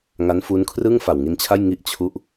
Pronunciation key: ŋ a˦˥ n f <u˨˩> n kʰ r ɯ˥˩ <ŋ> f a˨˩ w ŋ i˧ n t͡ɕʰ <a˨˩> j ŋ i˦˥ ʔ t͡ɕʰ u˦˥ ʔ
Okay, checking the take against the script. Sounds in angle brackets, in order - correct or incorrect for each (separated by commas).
incorrect, correct, incorrect